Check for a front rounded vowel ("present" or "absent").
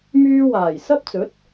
present